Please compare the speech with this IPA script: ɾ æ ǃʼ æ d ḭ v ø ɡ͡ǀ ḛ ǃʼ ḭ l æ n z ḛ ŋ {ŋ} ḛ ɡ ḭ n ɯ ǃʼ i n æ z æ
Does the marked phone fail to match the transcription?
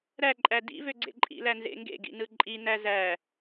yes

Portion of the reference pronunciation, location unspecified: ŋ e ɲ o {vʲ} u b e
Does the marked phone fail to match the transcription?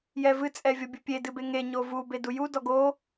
yes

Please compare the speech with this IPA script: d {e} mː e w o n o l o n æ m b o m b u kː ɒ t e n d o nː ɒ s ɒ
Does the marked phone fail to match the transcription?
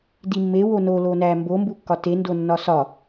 yes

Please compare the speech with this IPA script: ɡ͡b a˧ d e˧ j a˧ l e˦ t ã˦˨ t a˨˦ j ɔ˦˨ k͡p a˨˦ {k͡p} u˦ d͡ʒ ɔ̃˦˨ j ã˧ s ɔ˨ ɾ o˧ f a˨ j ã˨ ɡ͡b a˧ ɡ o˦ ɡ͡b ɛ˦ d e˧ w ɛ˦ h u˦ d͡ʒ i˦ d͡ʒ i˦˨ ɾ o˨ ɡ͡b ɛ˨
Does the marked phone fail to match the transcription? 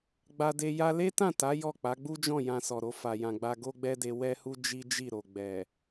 yes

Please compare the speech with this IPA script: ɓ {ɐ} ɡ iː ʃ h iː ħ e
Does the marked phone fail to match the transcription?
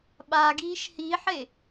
yes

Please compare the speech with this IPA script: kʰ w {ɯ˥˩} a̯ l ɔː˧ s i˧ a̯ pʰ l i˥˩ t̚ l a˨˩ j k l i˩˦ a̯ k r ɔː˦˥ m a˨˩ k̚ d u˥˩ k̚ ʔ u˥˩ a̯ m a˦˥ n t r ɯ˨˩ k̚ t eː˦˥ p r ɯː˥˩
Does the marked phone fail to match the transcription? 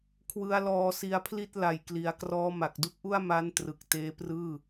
yes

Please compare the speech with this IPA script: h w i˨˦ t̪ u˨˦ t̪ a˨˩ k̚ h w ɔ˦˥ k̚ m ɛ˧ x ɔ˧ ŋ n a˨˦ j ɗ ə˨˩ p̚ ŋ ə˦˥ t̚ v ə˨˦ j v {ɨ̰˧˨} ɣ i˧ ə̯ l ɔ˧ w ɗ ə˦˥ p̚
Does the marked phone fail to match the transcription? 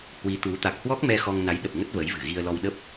yes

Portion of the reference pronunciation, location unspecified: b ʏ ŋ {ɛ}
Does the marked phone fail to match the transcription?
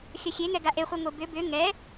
no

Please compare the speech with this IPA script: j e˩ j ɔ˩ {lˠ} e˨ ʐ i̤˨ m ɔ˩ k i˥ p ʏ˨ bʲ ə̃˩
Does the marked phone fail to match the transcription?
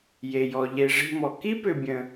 yes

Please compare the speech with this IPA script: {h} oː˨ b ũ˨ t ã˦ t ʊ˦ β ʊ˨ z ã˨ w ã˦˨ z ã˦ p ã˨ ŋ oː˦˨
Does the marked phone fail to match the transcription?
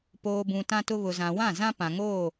yes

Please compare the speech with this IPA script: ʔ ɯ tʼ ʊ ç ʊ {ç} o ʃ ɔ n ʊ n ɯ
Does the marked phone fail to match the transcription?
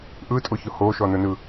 yes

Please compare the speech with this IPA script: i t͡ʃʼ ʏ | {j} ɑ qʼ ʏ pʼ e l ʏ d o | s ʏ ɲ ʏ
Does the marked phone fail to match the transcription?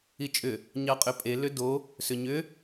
yes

